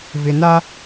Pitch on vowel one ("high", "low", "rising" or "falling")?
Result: low